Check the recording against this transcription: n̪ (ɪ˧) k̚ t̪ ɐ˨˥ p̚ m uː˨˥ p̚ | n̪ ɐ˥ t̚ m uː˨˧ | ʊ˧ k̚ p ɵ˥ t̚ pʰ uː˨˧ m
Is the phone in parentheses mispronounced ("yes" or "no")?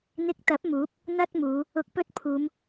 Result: no